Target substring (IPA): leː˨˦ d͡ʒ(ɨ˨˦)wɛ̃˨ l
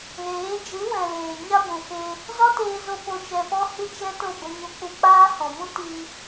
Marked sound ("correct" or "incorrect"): correct